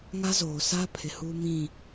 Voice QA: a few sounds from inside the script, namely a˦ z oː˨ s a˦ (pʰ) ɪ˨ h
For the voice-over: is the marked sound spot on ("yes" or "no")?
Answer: yes